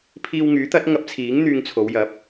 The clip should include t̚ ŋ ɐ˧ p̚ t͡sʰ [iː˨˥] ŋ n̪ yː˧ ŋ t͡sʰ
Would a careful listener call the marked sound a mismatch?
no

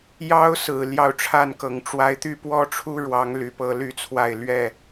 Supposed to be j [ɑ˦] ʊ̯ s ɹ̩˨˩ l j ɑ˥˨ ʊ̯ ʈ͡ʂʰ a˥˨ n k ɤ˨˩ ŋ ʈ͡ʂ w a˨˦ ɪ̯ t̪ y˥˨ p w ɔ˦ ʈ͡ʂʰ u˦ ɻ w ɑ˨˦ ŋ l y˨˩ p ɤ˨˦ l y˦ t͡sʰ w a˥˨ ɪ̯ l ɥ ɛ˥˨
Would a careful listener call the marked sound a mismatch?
no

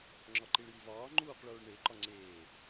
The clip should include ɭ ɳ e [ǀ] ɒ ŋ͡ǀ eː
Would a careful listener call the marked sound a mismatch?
yes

